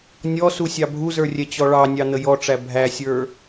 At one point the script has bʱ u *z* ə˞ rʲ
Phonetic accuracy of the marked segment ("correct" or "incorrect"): correct